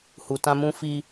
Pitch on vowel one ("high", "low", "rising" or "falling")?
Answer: low